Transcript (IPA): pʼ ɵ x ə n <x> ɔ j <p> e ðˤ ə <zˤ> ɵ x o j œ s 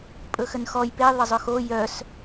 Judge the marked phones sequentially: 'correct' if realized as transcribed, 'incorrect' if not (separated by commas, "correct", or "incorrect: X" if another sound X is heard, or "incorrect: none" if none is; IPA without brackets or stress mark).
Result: correct, correct, correct